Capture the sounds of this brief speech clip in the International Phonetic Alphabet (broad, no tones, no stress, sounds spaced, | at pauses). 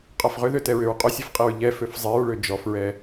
qʼ a f ʁ ʏ ð ø t ɛ ɹ ʏ ɹ qʼ ʏ sʲ ɛ f qʼ i ɹ ʎ ɛ f ø f zˤ i ɹ ɭ ø d͡ʒ ɔ f ɹ ɛ